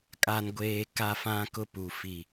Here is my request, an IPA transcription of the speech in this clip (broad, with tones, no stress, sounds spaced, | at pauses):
kʼ a˦ n ɡʷ eː˦ k a˦ f ã˦ k ʊ˦ p u˨ f i˨